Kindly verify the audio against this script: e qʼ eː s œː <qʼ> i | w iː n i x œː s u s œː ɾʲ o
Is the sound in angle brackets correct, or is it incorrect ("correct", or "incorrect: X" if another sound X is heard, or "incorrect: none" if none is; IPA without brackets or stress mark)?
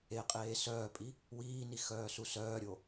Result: incorrect: pʼ